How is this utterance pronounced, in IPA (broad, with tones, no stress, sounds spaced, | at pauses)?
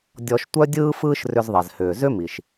dʲ ɔ˧ ʃ tʷ œ˥ dʲ ɯː˥ f ɯː˥ ʃ r ʏ˧ z ðˤ ɛ˩ z h ʏː˩ z ʏ˥ m i˩ ʃ